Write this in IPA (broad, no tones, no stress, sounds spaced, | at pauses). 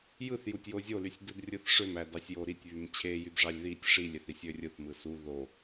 j ɯ θ j u tʲ j o zʲ o l y sʲ d ɯ d rʲ ɯ θ ʂ ø m æ d ɑ sʲ j o ɾ i tʲ β y m t͡ɕʰ e j y d ʐ ɑ lʲ ð i tʲ ʂ i lʲ e θ i sʲ ø rʲ ɯ θ m ɯ s u ð o